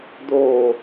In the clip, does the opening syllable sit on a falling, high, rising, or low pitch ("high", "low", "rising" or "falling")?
falling